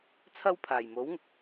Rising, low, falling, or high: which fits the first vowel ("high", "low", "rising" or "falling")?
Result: high